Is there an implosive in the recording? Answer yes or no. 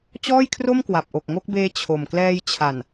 no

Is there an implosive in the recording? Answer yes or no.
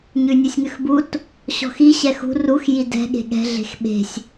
yes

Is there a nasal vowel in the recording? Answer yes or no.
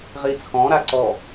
yes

